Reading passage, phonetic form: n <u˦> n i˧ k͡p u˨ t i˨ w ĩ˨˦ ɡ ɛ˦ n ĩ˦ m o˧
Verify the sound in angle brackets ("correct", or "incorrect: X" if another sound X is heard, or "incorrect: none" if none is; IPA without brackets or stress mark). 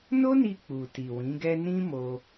incorrect: o˦